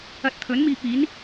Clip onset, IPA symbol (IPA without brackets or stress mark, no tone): ɐ